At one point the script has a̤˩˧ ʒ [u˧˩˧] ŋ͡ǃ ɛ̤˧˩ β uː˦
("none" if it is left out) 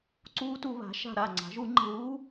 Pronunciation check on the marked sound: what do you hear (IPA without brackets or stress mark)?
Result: u˧˩˧